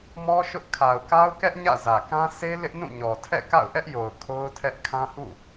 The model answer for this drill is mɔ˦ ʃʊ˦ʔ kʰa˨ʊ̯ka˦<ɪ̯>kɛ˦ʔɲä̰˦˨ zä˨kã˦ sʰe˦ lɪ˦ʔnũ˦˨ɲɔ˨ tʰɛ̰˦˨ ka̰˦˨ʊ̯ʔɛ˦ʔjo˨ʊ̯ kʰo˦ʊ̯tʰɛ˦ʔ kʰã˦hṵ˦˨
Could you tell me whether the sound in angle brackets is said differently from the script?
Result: yes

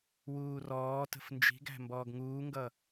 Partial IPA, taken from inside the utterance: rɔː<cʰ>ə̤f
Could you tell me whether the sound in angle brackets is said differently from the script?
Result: yes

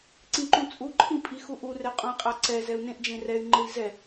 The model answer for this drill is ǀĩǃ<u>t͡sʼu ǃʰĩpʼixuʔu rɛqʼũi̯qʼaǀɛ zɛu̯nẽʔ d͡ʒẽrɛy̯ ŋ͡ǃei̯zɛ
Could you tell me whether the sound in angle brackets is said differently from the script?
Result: yes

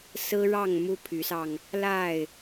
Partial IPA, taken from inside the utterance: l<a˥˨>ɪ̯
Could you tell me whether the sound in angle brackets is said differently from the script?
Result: no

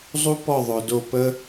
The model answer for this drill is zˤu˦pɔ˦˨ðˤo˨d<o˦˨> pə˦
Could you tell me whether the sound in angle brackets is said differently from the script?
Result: no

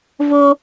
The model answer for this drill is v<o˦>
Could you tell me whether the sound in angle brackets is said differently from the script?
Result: no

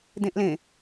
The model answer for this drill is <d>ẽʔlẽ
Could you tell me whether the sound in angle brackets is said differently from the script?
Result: no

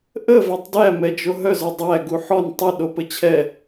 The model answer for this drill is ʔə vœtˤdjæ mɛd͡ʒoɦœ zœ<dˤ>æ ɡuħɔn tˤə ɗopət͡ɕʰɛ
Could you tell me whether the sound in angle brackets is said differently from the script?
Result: no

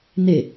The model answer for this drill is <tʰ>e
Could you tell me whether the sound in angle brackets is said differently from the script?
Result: yes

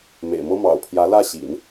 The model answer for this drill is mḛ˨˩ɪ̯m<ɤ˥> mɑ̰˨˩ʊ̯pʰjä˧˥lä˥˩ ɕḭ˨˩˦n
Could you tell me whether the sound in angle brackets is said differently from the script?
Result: no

